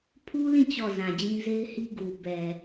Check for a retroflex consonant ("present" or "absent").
absent